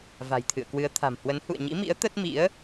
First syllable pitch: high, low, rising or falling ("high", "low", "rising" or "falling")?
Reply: low